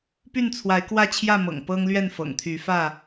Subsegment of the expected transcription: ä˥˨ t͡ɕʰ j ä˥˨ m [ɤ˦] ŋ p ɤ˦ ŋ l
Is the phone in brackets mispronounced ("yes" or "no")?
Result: yes